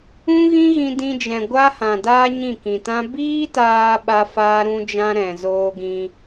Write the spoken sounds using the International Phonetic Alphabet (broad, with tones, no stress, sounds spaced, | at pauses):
ũ˦ ɣ ĩ˦ ɣ ĩ˧ d ĩ˧ d͡ʒ ɛ̃˨ ɡʷ a˦ h ã˨ d aː˦ ɲ ĩ˦˨ k ĩ˨ t ã˦ b iː˦ t aː˧ ɓ a˦ f aː˦ ɾ ũ˦ d͡ʒ ã˦ ɾ ɛ̃˨ z oː˦ ɡ ĩ˦